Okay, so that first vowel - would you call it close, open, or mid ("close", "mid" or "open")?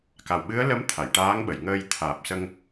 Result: open